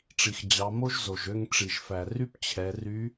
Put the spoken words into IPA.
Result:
ʈ͡ʂ i˩ x d͡ʑ ɑ˩˧ m o˥ ʒ z o˩ ʒ ø˧ ŋ ʈ͡ʂ i˩ ʒ f æ˩ r y˥ p t͡ɕʰ ɛ˩˧ r y˧˥

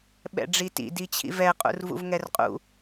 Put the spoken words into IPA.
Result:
ɓ ɛ̰ ɖ͡ʐ i t ḭ d i t͡ɕʰ ḭ v ɛ qʼ ṵ r v ṵ v ŋ ɛ r qʼ ṵ

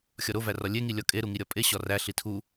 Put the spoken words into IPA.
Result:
xʲ ɒ ɾ o v æ r ɒ lʲ e ŋ i lʲ ɒ kʼ e ɾ u ŋ i ɾʲ ɒ pʼ e ɕ ɒ r æ ɬ i tʰ u

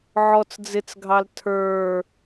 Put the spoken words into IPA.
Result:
ʕ ɔ t͡s d͡z ɪ t͡s ɡʱ ɑ l tʰ ə˞

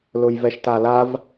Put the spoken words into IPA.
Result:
l ʊ j v ɛ ʃ t a l a v

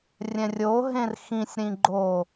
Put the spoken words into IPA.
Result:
rʲ ɛ̃ rʲ o ɦ ẽ r x ĩ sʲ ɾ ĩ ɡ͡ǃ o

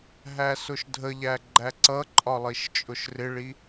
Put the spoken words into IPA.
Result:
ɦ æ s ʊ ʃ dʱ ə ʎ æ ɡ͡ǃ æ ǀ ʌ ǃʼ ɒ lˠ i ʃ t͡ʃʼ ʊ ʃ r ɪ ɭ i

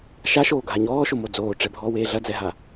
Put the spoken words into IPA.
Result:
ʃ a ʃ oː ɡʱ a ɲ ɔː ʃ o m o d͡z oː ʈ͡ʂ ɛ bʱ ɔː w eː ɮ ɐ d͡z ɛ ɦ a

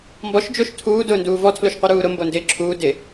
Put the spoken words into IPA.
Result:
m b ɔ ʃ d͡ʒ o ʃ tʰ uː d ʊː n d uː v ɔ tʰ l o ʃ qʷ i ɾ uː ɾ ʊ m b o n d ɪː ǁʰ uː d ɪ

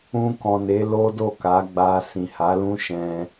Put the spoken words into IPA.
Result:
ũ˧ k ɔ̃˨ n e˨˦ l o˦ d o˦˨ k a˨˦ ɡ͡b a˧ s ĩ˨ h a˨˦ l ũ˦ ʃ ɛ̃˧

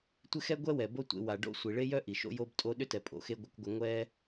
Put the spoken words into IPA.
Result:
tʷ ɪ˦ x ɛ˦ ɡʷ ɛ˦ w ɛ˨ b o˦ tʷ ḛ˧ w a˨ ɖ o̰˧ sʷ i˨ ɭ e˦ j œ˦ ʔ i˨ ʃ o̰˦ j o˦ b tʼ o˦ ɗ ʏ˦ t ɛ˨ pʼ o̰˨ x e˧ ɡʷ ɪ˧ kʷ ɡʷ ə˧ ŋʷ ɛ˦

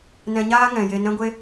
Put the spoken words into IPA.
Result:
n ɛ̃˧ ɲ aː˦ ŋ ɛ̃˨ j e˧ n ɛ̃˦ ɡʷ e˦

